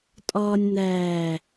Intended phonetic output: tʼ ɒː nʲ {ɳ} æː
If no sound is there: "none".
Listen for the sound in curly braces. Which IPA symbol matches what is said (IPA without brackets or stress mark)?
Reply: n̪